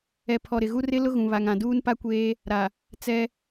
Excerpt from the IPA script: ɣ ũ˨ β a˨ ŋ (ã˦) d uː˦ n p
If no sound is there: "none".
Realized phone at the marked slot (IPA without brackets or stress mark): ã˨